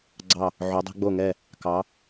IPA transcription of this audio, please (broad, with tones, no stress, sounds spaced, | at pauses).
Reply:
ɡ͡ǀ ɑ˧˩ | ʕ o˩˧ dˤ ɛ̤˧ ɡ͡b o˧˩ ŋ ɛ˧˩ | k ɑ˩˧